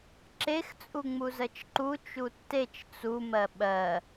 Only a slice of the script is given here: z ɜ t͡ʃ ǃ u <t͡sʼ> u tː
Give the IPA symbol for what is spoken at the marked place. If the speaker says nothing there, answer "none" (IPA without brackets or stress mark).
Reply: t͡ʃ